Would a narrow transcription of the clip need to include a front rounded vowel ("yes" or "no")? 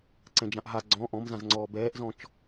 no